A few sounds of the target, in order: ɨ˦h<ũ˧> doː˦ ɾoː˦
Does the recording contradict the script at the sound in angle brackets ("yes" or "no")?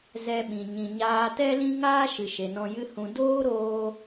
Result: no